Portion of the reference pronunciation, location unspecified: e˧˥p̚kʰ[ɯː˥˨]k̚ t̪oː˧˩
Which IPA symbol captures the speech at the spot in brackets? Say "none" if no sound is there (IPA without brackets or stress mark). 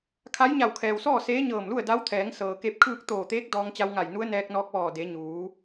ɯː˥˨